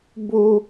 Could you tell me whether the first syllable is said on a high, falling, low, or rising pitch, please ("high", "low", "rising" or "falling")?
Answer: high